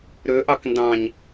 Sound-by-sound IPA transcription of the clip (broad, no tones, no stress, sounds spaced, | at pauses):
ɾ ø ʔ ɑ k n d ɑ̃ ɲ